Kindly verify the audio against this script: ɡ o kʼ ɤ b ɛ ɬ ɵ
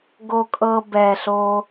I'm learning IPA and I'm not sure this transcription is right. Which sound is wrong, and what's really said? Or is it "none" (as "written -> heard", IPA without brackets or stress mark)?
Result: ɵ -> o